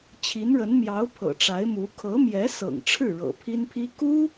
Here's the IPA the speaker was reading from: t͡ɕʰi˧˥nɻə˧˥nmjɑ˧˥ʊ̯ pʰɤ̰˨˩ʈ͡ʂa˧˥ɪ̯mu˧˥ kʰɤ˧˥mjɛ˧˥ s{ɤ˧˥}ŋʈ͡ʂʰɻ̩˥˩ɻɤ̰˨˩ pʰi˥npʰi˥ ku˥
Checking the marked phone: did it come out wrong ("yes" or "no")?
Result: yes